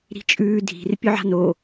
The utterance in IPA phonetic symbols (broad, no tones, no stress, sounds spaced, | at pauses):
ɾ i̤ t͡ʃʼ ʉː dʱ i̤ r pʲ ɵ ʕ a̤ n o